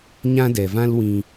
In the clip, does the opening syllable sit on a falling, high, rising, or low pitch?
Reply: high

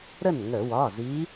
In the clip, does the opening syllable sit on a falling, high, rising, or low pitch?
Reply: falling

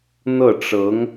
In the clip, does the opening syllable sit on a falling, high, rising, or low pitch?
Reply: falling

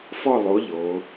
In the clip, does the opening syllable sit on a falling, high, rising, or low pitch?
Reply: falling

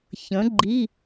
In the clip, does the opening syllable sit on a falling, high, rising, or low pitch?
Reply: rising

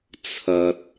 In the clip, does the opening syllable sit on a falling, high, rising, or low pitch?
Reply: low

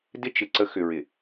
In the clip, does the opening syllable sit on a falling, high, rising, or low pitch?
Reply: high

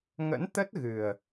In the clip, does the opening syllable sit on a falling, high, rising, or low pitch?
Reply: rising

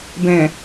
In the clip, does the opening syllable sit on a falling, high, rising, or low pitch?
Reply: low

